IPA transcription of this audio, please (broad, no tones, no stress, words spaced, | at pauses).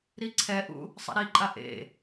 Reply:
ɾiǀʰɛʔṵ | sˤɛ̰ɾiǃʼa ʔḛ